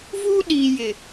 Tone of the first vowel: high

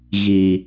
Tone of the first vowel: low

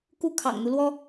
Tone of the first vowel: falling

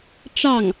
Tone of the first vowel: falling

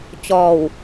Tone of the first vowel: low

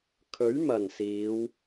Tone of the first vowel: rising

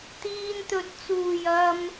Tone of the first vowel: high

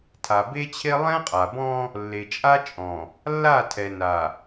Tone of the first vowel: low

